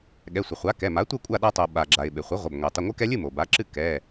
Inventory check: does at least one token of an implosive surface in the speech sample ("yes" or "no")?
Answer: yes